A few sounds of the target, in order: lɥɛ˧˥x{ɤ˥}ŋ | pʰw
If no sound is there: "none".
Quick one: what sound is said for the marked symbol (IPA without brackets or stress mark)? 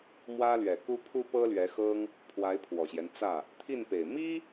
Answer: ɤ˥